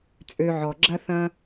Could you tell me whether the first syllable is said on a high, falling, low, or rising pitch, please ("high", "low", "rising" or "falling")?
low